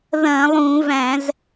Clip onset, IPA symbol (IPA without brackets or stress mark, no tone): ð